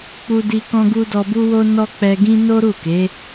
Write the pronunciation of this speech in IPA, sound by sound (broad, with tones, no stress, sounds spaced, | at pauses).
k͡p u˧ d i˧ k ɔ̃˧ ɡ u˧ d ɔ˧ b u˦ w o˦ n ɔ˦ k͡p ɛ˧ ɡ ĩ˦ n o˦ ɾ u˦˨ k e˨˦